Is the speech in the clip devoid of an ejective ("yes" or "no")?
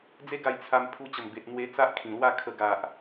yes